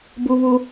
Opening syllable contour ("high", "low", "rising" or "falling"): high